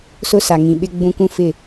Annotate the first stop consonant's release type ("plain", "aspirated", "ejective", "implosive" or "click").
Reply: implosive